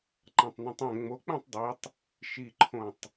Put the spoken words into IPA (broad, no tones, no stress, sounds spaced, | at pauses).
ǃ ã tˤ n ũ tˤ ɛ̃ ŋ͡m o k͡p ɛ̃ tˤ dˤ ɛ tˤ | ʃ i ǃʰ õ tˤ